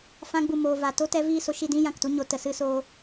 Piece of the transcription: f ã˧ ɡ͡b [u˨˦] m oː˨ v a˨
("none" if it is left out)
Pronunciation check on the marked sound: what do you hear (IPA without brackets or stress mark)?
u˨